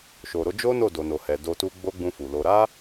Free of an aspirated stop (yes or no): yes